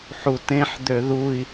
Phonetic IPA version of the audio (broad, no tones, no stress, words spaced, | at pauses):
ħutẽħ d̪øðui̯